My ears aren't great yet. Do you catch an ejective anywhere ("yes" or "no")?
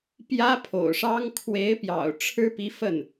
no